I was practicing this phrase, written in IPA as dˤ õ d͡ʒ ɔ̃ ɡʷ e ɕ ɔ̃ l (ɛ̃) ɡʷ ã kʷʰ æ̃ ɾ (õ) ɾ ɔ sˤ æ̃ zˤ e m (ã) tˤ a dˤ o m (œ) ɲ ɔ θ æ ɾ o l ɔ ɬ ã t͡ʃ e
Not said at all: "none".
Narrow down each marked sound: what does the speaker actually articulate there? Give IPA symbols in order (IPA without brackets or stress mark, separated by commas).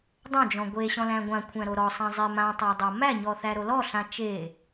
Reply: æ̃, o, ã, æ